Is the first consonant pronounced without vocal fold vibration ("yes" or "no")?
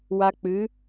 no